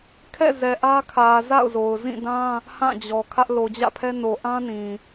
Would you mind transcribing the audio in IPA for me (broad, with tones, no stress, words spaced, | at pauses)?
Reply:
kʰɛ̰˦˨ zɛ˨ ʔä˦kʰä˨ za̰˦˨ʊ̯zo˨ʊ̯ zĩ˦˨dã˦ | hã˦˨d͡ʑɔ˨ kʰä˦ʔ lo˨d͡ʑä̰˦˨pʰɛ˦ no˨ʔã˦nĩ˨